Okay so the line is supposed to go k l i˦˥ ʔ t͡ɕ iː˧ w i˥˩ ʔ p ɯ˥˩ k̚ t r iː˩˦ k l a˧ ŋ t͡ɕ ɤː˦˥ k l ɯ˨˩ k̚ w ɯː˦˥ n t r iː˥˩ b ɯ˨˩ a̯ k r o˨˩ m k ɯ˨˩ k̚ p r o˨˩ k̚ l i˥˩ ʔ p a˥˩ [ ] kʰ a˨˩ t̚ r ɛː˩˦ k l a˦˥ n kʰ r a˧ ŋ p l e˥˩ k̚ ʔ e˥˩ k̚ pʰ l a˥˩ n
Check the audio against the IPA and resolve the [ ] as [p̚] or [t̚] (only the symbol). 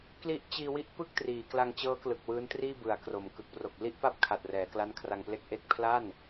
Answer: p̚